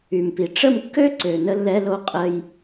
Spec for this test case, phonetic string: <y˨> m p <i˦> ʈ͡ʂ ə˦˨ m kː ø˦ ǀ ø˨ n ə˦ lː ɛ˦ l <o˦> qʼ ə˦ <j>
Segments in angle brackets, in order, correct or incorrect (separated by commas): correct, incorrect, correct, correct